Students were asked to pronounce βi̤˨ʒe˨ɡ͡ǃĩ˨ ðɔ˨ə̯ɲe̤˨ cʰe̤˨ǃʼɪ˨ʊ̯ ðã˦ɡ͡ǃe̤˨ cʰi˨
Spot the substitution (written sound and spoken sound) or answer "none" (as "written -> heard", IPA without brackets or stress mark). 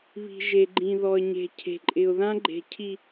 none